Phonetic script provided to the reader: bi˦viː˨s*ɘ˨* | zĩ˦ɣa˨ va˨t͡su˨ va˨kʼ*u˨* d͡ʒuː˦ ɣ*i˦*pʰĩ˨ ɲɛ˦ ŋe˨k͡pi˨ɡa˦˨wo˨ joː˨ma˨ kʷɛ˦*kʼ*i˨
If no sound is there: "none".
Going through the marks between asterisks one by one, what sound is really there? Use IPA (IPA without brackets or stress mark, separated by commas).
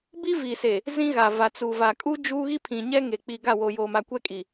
e˨, u˦, i˦, kʼ